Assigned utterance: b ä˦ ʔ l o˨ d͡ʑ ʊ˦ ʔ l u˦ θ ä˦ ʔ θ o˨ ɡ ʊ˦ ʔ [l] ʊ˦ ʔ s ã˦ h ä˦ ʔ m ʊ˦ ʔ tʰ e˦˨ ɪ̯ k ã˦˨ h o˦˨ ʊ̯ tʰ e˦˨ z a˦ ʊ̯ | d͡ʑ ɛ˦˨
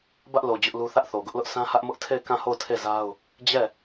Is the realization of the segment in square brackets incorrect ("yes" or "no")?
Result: no